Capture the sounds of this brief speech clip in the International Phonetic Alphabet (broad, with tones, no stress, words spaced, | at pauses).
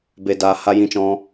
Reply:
be˨daː˨ ha˦jĩ˦t͡ʃɔ̃˦